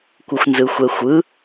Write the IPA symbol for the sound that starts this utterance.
kʷ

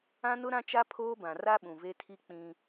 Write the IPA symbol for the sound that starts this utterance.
ã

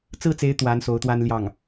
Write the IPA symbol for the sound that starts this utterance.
t͡s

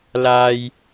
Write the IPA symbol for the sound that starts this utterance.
l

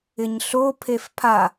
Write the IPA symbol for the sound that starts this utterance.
ɪ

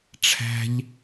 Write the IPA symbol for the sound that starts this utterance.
ʈ͡ʂʰ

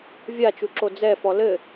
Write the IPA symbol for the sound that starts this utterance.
vʲ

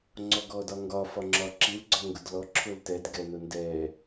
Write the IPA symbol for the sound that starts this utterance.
ŋ͡ǀ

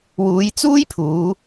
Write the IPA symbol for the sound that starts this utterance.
w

